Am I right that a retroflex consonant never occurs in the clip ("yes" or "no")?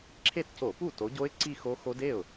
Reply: yes